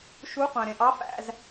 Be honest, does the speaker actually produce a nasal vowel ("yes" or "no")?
yes